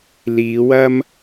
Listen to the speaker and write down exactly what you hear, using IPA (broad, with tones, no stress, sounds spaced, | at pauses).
l iː˨˧ w ɐ˥ m